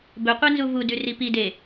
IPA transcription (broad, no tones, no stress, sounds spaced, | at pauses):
b ɵ qʷ e n z u v u d ʉ r i p i d e